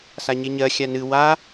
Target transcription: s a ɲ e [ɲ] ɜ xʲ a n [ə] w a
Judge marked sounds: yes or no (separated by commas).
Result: yes, no